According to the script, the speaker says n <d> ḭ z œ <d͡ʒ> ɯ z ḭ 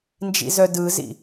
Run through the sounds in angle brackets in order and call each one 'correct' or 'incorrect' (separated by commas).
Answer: incorrect, incorrect